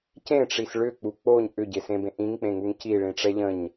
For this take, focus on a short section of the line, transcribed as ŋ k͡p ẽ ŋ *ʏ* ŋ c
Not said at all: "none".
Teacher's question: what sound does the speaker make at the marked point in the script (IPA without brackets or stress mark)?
u